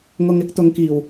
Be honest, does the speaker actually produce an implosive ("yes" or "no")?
no